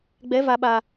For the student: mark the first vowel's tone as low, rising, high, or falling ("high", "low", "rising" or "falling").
rising